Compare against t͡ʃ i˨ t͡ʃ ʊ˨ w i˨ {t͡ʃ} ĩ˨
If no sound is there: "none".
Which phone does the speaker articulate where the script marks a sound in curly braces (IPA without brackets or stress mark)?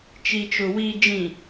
d͡ʒ